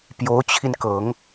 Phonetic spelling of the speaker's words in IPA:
p j o˧˥ ʊ̯ t͡ɕʰ i˧ n k ɤ˨˩˦ ŋ

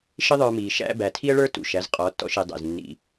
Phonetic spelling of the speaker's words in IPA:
ʃ ɪ˦ ðˤ ə˞˧ m iː˨ ʃ æ̰˧ b æ˨ tʰ i˦ ə̯ ɭ ə˞˦ t ṵ˨ ʃ æ˨˦ z qʼ ɔ˨˦ tː ɔ̰˧ ʃ i˨ dˤ æ̰˨ z nː ḭ˧

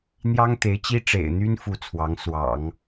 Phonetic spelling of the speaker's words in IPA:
n̪ j ɑ˥ ŋ t̪ e˧˥ ɪ̯ t͡ɕ i˥ ʈ͡ʂ ḛ˨˩ ɪ̯ n̪ y˥ n f u˥˩ t͡sʰ w ɑ˧˥ ŋ s w ɑ̰˨˩˦ ŋ

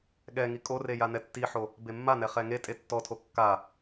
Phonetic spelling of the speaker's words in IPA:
ɠ ɛ ŋ i kʼ o r e j a n ɛ tː i ħ o | b e mː a n ɛ χ ɛ ŋ e tʼ e tː ɔ tʰ o kː a

